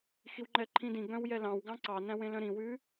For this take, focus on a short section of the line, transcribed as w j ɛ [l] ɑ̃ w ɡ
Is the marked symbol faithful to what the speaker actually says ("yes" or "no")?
yes